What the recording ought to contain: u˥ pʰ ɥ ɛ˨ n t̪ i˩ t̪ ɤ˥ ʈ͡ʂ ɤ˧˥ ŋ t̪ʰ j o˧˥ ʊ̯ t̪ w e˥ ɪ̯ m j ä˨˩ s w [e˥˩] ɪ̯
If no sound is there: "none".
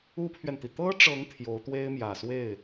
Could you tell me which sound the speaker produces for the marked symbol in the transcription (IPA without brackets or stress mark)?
e˥˩